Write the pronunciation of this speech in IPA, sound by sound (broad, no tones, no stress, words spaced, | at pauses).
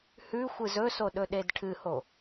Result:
hʉxʷɨz ɵso ɗɵɗedʈʰɨho